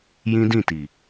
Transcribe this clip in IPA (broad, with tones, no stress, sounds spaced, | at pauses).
j ĩ˦ d ĩ˦˨ t i˨